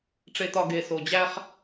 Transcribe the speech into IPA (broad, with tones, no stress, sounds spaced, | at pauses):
ʈ͡ʂ e˨ t ɒ˨ ɡ e˨ s o˨ d͡ʑ æ˦ χ